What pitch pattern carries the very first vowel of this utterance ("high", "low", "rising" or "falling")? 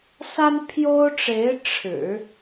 high